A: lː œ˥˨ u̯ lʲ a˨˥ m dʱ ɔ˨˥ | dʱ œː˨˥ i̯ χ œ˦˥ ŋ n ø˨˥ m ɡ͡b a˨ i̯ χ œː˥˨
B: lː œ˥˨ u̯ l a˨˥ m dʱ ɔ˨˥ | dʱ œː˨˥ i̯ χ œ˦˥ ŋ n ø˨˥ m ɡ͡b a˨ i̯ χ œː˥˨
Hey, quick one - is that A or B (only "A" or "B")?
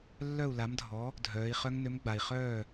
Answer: B